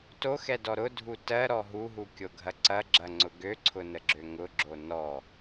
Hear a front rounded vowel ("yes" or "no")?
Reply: yes